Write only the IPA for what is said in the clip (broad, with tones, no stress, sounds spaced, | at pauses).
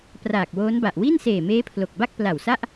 p r aː˨˩ k̚ w oː˦˥ n b a˨˩ ʔ w i˥˩ n s eː˨˩ m eː˦˥ pʰ l o˨˩ k̚ b a˥˩ k̚ p l a˨˩ w s a˥˩ ʔ